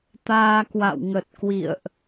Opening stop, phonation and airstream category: plain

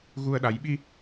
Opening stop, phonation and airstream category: implosive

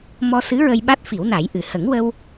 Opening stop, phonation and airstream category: implosive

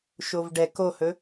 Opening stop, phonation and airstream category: plain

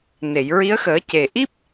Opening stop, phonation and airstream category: plain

